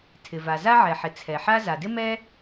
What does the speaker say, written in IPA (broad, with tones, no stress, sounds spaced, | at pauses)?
tʰ ɪ˩ v a˩ z a˥ ʕ ɛ˩ ħ ɪ˩ t͡sʰ ɛ˩ ħ a˥ z a˩ d ɪ˥ m ɛ˥